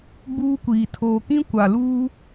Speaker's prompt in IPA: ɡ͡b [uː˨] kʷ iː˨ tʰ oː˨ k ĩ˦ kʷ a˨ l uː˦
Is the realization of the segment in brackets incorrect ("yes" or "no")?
yes